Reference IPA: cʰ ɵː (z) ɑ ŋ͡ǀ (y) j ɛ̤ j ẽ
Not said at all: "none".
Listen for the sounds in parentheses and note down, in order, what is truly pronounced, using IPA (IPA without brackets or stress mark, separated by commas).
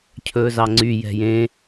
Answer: z, y